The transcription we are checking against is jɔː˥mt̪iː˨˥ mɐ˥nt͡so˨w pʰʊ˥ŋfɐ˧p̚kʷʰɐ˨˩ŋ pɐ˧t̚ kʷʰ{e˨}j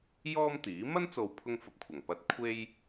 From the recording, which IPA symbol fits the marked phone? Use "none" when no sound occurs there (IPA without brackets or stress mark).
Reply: e˥